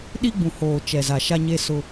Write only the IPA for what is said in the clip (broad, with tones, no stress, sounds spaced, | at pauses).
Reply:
ɗ i˦ ɡ͡b ũ˨ h oː˨ t͡ʃ ɛ˨ z a˨ ʃ a˦ ɲ e˦ s ʊ˦